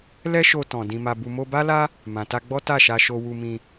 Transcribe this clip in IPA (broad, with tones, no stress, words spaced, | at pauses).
lɛ˦ʃo˧ tɔ̃˨ dĩ˨ma˨bu˨ mo˧ba˦la˦ | mã˨ ta˧ɡ͡bɔ˦ ta˦˨ʃa˧ʃo˧ wu˧mĩ˧